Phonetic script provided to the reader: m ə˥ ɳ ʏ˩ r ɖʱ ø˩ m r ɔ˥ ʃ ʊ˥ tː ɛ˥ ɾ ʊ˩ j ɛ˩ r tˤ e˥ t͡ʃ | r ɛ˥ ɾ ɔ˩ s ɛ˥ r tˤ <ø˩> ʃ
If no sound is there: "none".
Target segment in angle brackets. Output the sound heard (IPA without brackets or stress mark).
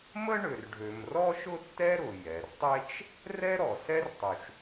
u˩